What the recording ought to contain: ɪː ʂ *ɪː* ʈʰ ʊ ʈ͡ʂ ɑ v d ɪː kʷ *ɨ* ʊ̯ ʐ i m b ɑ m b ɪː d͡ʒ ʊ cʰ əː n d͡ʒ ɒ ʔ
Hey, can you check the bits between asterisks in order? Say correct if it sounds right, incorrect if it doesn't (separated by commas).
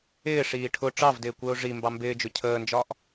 incorrect, incorrect